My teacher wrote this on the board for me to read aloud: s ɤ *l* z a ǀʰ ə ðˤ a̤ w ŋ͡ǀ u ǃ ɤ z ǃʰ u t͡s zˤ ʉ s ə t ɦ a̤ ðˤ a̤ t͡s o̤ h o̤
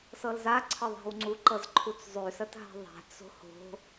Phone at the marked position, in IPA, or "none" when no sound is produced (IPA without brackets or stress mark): l